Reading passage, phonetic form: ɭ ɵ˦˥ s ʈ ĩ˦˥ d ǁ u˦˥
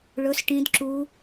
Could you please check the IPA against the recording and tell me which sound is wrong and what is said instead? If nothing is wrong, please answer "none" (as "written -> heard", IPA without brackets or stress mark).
none